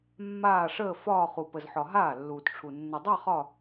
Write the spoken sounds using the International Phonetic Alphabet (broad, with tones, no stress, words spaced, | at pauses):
mːaː˥˧ʂəː˥˧ fɒː˥˧χu˨ pə˨zħɒ˨ ɦaː˥˩lːuː˨tʈ͡ʂʰu˨ nːə˨dˤa˥˧ χɒ˥˧